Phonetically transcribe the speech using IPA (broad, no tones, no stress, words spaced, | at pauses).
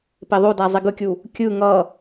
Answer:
peðˤoda zˤiɡɯkʲu | kʲɯ ŋʌ